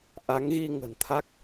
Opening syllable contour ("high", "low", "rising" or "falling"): rising